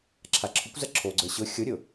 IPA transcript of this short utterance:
ǁʰ a ǁʰ ʊ kʷ z ɐ ǁʰ o ɡ͡ǀ ə˞ ɕ ʊ xʲ o ɾʲ ʊ

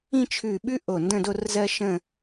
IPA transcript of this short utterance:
ĩ˥˧ t͡ʃʰ ʉ˧˩ ɓ ʉ˥ ʔ o˧˩ n d ə̃˥˧ d o˥˧ r z ɜ˥ ʃ ə̃˥˧

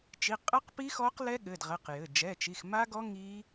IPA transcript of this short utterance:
t͡ʃ i˩˧˩ qʼ ɛ˦˥ q p i˦˥ x ɔ˦˥ q l ɛ˦˥ ɠ ɘ˩˧˩ d ʁ ɛ˩˧˩ q j ɘ˩˧˩ d͡ʒ ɛ˩˧˩ t͡ʃ i˩˧˩ x m a˦˥ ɡ ɔ˦˥ ŋ i˦˥

